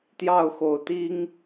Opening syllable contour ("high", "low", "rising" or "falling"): falling